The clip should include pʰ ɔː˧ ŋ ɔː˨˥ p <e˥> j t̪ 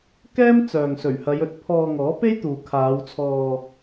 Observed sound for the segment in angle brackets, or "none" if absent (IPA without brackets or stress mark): e˥